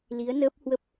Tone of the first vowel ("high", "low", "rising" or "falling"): rising